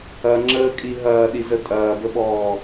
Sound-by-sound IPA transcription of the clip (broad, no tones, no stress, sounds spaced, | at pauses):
ɐ ŋ͡ǁ əː kʼ i ɦ ɐː ɗ i z ə tʼ ɐː b ə ɓ ɔː